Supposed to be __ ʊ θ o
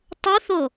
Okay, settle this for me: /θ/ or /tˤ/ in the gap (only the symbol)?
tˤ